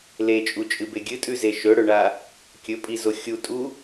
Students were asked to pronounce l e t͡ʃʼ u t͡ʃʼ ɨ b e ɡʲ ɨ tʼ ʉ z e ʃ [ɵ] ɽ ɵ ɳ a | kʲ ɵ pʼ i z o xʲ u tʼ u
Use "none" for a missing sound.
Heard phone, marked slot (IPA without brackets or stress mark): ɵ